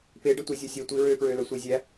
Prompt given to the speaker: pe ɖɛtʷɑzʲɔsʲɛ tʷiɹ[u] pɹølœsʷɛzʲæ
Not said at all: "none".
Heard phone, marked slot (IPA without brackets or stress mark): ø